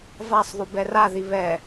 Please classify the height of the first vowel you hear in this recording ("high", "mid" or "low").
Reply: low